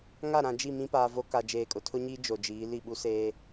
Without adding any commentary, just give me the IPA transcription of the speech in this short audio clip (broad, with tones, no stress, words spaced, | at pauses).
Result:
ŋa˦˨ɾã˨d͡ʒi˦˨ mĩ˦paː˨ vo˦ka˨ d͡ʒeː˨kʼʊ˨tʰʊ˦ɲiː˦ d͡ʒo˨d͡ʒiː˨˦ li˦˨ɓu˦seː˦